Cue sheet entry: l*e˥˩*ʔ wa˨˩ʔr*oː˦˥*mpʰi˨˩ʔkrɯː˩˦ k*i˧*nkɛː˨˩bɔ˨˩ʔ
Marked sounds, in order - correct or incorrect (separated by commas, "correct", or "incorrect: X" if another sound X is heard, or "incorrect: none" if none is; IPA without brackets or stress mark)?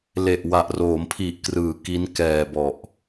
incorrect: e˨˩, incorrect: oː˩˦, incorrect: i˦˥